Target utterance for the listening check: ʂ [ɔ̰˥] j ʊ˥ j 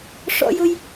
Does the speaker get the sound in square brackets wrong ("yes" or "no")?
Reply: no